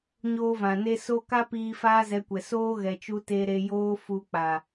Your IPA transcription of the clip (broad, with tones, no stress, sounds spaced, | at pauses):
ɲ oː˧ v ã˨ n e˧ s o˦ k a˦ p iː˧ f aː˦ z ɛ˧ kʷ ɛ˨ s oː˦ ɣ ɛ˨ t͡ʃ u˧ t e˧ ɾ e˧ j oː˦ f u˧ k͡p a˨